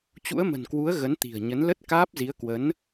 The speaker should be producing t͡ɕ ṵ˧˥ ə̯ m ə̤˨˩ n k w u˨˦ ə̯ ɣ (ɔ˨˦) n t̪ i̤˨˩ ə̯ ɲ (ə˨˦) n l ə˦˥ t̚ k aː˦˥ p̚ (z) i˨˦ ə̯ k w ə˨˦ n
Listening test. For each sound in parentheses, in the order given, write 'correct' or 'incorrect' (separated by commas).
incorrect, correct, correct